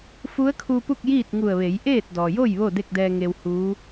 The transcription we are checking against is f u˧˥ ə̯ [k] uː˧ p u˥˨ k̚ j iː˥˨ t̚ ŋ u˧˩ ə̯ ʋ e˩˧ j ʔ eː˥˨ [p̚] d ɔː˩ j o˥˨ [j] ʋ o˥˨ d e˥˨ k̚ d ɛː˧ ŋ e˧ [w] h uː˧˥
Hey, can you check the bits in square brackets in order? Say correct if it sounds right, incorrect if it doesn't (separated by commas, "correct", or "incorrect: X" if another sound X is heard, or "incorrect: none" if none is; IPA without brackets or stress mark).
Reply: incorrect: kʰ, incorrect: t̚, correct, correct